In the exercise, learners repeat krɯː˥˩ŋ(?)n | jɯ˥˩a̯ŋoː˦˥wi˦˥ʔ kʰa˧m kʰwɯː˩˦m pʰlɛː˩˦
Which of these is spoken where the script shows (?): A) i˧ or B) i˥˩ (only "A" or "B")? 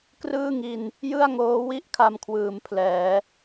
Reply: A